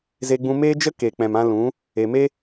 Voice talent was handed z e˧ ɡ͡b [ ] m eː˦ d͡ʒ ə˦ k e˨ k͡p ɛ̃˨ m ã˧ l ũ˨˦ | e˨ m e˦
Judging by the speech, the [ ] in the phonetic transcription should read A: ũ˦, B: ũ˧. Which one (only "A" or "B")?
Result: B